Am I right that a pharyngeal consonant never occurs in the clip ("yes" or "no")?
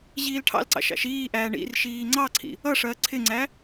yes